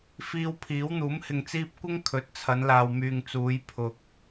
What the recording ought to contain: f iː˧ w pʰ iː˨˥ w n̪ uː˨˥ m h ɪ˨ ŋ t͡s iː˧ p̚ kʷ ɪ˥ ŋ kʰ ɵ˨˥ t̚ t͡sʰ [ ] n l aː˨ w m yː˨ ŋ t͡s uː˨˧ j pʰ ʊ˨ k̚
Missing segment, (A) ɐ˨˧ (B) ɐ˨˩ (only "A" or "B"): A